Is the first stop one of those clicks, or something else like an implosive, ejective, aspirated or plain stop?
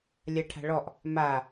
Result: aspirated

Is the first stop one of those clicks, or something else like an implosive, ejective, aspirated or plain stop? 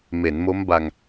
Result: plain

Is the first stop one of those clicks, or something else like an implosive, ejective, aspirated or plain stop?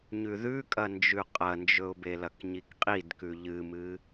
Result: ejective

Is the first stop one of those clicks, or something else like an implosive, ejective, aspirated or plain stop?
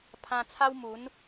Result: aspirated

